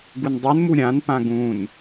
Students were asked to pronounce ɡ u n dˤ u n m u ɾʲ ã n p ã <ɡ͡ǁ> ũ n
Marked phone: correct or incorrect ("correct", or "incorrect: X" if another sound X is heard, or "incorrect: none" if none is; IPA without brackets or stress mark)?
incorrect: ɡ